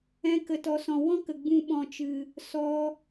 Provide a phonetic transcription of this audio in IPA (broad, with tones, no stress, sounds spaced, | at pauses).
ɛ̃˧ k ə˨ t ɔ˨ s ɔ̃˨ w ɔ̃˦ k ə˨ ɡ͡b ũ˧ ɓ ɔ̃˨ t͡ʃ ɨ˨ | s ɔ˧